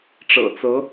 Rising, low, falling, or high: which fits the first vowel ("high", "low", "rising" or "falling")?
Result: low